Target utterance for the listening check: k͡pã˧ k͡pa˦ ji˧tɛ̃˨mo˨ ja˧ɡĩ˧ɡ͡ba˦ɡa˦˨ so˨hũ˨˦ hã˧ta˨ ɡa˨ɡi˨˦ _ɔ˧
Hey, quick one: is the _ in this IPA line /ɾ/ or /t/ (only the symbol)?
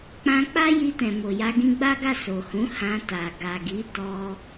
t